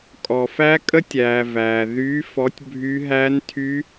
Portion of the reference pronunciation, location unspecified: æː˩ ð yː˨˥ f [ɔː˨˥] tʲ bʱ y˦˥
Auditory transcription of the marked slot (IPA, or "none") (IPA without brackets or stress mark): ɔ˨˥